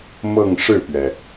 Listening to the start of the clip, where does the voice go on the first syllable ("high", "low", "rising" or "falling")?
falling